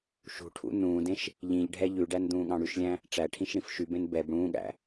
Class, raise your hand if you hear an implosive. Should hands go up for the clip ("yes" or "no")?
yes